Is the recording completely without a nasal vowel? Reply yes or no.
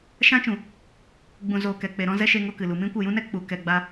no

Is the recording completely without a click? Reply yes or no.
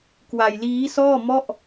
yes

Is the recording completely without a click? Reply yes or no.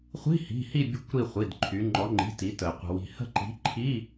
no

